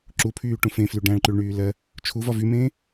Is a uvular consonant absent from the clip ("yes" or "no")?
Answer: yes